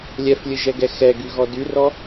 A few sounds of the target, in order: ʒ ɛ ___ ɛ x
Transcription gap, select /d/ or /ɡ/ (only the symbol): ɡ